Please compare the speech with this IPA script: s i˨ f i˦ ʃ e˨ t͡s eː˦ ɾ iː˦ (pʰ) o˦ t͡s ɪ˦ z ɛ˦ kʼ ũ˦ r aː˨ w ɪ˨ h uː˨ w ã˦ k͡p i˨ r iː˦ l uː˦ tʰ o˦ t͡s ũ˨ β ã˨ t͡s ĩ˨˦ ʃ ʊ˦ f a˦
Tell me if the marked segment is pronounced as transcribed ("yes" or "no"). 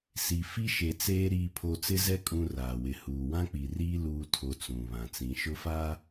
yes